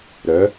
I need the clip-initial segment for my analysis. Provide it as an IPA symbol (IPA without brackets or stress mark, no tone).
ɾ